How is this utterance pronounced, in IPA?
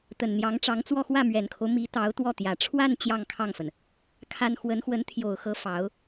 t̪ə˨˩nn̪jɑ˧˥ŋʈ͡ʂɑ˧˥ŋt͡swɔ˥˧ xwä˥˩mɥɛ˨˩nkʰo˦ʊ̯ mi˧˥t̪ɑ˧˥ʊ̯ t̪wɔ˥˩t̪jä˨˩ ʈ͡ʂʰwa˥˧n t͡ɕjɑ˥˧ŋkʰɑ˥˩ŋfə˩n | kʰa˥n xwə˧˥nxwə˧˥n t̪ʰjo˨˩ʊ̯xɤ˧˥ fɑ˧˥ʊ̯

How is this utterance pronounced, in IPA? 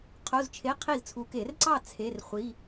qʰo˧˥˧zt͡ʃʰe˧˥˧qʰi˥˩zt͡sʰu˨˦ ke˨˩˦rǀɑ˥˩ t͡sʰe˧˥˧rχʷi˧˥˧

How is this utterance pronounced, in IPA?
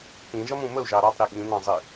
pĩʒʌmũ məu̯ʒɑ ɾɑtˤɾi ɠĩnɑ̃zˤi

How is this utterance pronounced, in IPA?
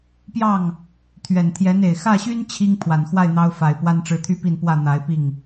pjɑ˥˩ŋ | t̪ʰɥɛ˨˩nt̪ʰjɛ˧˥ne˨˩ɪ̯ xä˥˩ɕy˥n t͡ɕʰi˥ŋ pʰwa˨˩nxwa˥˩ɪ̯ n̪ɑ˥ʊ̯ fa˨˩ɪ̯ pwa˥nʈ͡ʂɻ̩˧˥t̪ʰy˥ pi˥˧npwä˥˩ n̪a˧˥ɪ̯pi˥˩ŋ

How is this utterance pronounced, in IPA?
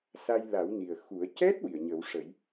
sa˧jla˨˩˦w ni˨˩ə̯xu˨˩˦ə̯ cɛ˦˥t̚ wi˨˩˨ə̯ɲəː˨˩˦wʂə˨˩˦j

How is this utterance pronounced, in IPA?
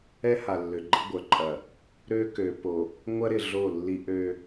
ɛ˦ha˨ lːø˨ɡ͡ǃɪ˦ɡʷœ˨ǃʼɐ˨ | ɾø˦ kø˨po˨ | ŋʷɐ˦ɾɪ˨ ɮo˦˨lːi˦ ʔø˦

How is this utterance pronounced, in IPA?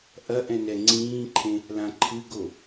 ʔɐ ʔɛ̃nɛŋ͡ǀĩːǃʰẽ | lãǃʰɨɡo

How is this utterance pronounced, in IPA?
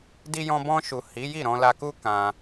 di˧jɔ̃˧bɔ̃˧ʃu˨ hi˨˦ji˦˨ ɾɔ̃˧la˧ku˦ kã˧

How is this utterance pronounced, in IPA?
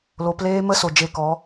lo˨˦pleː˦ mə˦so˨ d͡ʒe˧kɔ˨˦

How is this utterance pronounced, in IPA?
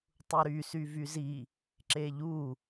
tˤuɾysy vyzi | ǁeʎu

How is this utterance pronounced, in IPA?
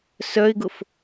sœɪ̯ɡʊf

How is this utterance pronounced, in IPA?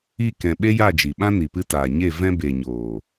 i˦˨kɛ̃˨ ɓe˦ja˦˨d͡ʒi˨ɓã˦ ni˨pɨ˧taː˨ɲe˦˨ vɛ̃˧ be˨ɲoː˨

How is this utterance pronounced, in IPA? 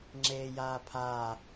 ŋ͡ǁeːjaːpʰaː

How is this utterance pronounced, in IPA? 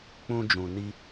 k͡pũ˦d͡ʒũ˧ni˦

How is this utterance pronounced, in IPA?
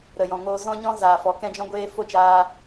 ɾə˨jɔ̃˨ŋoː˧ zɔ̃˦ɲɔ̃˦ zaː˨fɔ˨˦ kɛ̃˦d͡ʒɔ̃˦ɡʷeː˦ fo˦˨t͡ʃaː˧

